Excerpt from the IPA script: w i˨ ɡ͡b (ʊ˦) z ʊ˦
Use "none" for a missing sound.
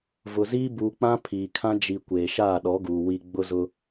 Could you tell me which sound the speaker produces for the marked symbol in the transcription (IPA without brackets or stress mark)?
ʊ˦